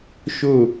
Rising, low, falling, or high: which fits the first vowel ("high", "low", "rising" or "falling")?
falling